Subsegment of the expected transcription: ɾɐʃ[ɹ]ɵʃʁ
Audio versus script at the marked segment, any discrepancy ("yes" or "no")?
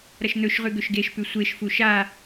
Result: yes